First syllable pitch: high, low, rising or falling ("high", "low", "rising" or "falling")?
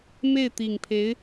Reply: falling